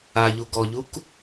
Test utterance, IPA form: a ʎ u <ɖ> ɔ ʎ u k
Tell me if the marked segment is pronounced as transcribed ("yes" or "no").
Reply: no